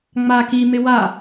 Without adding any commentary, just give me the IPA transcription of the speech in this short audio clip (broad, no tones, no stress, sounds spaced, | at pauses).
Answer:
ŋ͡m a k i m ɪ w a